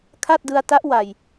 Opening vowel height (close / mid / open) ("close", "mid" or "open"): open